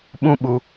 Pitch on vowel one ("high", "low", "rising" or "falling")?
high